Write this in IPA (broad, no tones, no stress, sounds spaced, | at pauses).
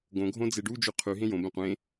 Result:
ɡ õ ɡʱ õ d͡z e ɖ u d͡ʒ ʉ qʰ ʉ ɦ ẽ j õ b ẽ qʷ ẽ